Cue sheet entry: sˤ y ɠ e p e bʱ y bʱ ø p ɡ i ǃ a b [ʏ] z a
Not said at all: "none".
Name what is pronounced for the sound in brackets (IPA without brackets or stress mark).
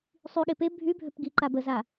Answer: ə